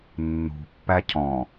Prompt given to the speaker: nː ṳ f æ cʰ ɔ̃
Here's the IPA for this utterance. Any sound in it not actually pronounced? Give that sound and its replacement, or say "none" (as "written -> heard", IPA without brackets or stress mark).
f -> pː